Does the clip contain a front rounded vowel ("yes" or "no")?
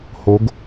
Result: no